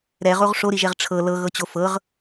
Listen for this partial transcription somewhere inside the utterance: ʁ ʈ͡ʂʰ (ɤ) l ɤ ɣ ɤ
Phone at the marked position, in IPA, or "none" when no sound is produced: ɤ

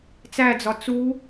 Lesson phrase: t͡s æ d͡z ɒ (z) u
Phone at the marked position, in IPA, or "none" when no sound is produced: t͡s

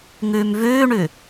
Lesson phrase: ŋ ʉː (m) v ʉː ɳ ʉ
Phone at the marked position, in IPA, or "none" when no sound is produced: m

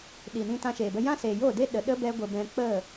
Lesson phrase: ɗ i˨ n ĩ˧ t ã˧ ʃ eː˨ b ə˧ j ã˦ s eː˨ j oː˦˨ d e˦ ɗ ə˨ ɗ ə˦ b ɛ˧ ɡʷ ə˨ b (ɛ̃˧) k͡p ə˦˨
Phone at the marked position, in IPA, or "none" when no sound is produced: ɛ̃˧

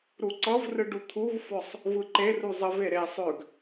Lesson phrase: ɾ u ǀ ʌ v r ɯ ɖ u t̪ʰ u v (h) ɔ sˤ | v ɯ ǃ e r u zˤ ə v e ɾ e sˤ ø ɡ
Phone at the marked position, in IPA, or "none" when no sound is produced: f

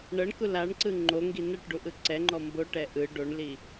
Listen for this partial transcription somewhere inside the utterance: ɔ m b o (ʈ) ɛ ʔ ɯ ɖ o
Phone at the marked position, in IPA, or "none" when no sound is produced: ʈ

